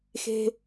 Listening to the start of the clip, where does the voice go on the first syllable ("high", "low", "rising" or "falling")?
low